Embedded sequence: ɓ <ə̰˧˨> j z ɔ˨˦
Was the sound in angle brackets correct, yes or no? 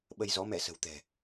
no